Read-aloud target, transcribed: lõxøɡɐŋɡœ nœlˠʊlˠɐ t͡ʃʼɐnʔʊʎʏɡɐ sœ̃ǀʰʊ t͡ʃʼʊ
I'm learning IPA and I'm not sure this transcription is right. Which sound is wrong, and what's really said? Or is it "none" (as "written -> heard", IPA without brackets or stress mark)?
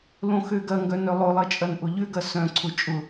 none